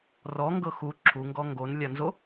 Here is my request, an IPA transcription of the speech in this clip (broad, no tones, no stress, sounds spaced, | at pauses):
r ɔ ŋ ɡ ɤ x u ǁʰ u ŋ ɡ ɔ ŋ ɡ o n lʲ a n z o